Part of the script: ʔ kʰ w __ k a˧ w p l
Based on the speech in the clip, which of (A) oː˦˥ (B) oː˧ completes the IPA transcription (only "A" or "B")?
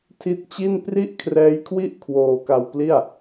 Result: B